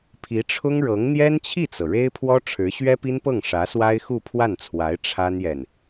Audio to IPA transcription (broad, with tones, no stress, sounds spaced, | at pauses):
pʰ i˧˥ ʈ͡ʂʰ ʊ˥ ŋ ɻ ɤ˧˥ ŋ n̪ j ɛ˥ n t͡ɕʰ i˥˩ t͡s ɤ˩ ɻ e˥ ɪ̯ pʰ w ɔ˥ ʈ͡ʂʰ ɻ̩˧˥ ɕ ɥ ɛ˥ p i˥ n p ɤ˥˩ ŋ ʂ ä˧˥ s w a˥ ɪ̯ x u˥˧ pʰ w a˥˩ n t͡sʰ w a˧˥ ɪ̯ ʈ͡ʂʰ a˥ n j ɛ˨ n